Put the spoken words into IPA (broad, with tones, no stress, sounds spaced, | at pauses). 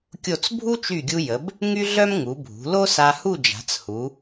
kʲ o˧˩ t͡s bʱ u˥ t͡ʃ y˧˩ ɡʲ u˧ j ə˩˧ b | ŋ y˥ ɮ œ˥ m ŋ u˩˧ bʱ ṳ˩˧ l o˥ s a˧ h u˥˧ d͡ʒ a̤˩˧ t͡s h u˩˧